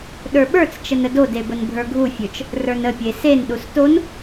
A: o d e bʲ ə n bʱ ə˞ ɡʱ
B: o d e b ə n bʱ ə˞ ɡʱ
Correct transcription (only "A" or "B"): B